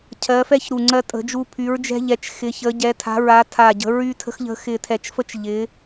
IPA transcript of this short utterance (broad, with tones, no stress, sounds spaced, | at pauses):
cʰ ɜ˨˦ f ɛ˦ ç ɾ u˧˩ ŋ͡ǀ ɜ˦ tʼ ə̤˨˦ d͡ʒ u˦ pʰ y˨˦ ɹ d͡ʒ ɛ̤˦ ʎ ɛ˨˦ t͡ʃ x ɪ˨˦ ç ə˨˦ ɟ ɛ˨˦ tʰ a̤˨˦ ɹ a˨˦ tʰ a˧˩ ɟ ə̤˨˦ ɹ y˦ tʰ ə̤˦ x ʎ ə̤˦ x ɪ˧˩ tʰ ɛ˧˩ t͡ʃ f ə˦ t͡ʃ ʎ ɪ˨˦